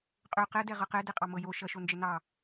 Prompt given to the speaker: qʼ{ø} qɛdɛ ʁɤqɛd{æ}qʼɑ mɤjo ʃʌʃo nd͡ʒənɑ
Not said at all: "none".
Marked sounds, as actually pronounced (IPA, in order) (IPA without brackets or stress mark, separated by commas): ø, ɛ